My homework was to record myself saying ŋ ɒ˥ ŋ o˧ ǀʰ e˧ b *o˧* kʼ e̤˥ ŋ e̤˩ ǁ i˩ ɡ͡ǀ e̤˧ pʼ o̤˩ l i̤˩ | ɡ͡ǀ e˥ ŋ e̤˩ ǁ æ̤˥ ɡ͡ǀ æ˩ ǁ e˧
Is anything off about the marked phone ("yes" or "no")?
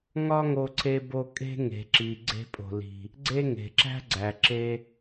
no